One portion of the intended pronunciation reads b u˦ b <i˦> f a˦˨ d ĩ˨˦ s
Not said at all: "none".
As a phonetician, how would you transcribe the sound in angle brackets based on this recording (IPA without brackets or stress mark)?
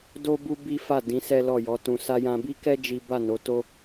i˦